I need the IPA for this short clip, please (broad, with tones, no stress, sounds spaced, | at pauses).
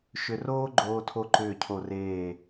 ʃ ʏ˧ r oː˥ ɡ͡ǃ oː˧ tʰ o˧ ǃ ʏː˧˩ cʰ o˧˩ r eː˧˩